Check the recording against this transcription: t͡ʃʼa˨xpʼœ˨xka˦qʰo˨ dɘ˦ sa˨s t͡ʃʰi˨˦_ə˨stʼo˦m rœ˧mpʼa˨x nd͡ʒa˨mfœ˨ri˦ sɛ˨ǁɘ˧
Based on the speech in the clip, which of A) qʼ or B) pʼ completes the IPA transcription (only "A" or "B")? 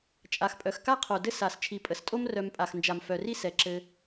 B